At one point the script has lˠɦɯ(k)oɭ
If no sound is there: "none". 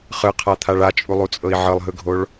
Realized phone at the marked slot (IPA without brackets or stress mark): ɡʱ